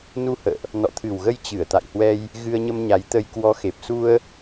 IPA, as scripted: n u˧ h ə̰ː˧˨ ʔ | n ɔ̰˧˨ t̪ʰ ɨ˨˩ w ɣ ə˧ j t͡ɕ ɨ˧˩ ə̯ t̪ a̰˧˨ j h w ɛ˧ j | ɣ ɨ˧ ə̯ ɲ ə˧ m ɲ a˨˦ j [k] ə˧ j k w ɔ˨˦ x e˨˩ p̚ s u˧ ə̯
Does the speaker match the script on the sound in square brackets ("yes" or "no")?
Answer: no